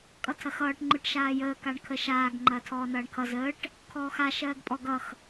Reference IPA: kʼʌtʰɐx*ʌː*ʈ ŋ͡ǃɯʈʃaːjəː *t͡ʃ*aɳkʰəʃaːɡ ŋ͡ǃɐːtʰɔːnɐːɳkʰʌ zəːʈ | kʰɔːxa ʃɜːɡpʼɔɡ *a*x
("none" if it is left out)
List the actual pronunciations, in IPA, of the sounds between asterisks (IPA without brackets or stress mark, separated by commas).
ʌː, k, ʌ